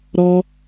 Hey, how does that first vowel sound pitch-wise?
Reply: high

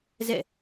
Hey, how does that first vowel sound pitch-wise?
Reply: falling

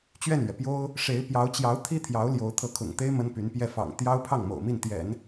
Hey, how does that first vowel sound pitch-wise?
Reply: falling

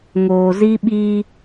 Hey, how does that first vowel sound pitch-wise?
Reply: low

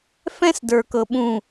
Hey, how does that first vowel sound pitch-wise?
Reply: high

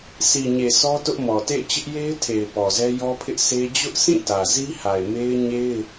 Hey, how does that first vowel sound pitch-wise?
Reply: low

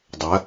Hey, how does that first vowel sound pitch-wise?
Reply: rising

